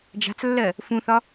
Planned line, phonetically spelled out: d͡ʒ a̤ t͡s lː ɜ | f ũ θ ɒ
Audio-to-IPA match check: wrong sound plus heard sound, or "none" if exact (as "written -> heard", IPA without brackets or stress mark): none